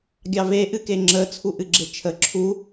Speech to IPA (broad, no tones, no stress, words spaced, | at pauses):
ɡʲɑve ʔɨkeŋ͡ǁə t͡sʰuʔɨɡ͡ǁet͡ʃʰə ǁʰu